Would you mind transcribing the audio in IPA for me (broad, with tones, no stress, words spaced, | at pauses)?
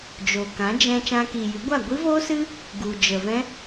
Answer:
d͡ʒo˨kã˨˦d͡ʒɛ̃˧ t͡ʃã˧kiː˨jɨ˨˦ɡʷa˦˨ ɡʷi˦vo˦sɨ˦ | ɡu˨d͡ʒə˨ vɛ̃˦